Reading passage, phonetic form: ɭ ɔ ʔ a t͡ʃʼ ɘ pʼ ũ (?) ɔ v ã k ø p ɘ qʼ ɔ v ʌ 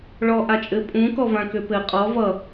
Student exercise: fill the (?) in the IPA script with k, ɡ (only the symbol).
k